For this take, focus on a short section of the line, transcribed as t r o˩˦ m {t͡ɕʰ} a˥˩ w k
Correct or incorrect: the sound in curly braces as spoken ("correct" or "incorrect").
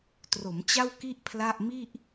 incorrect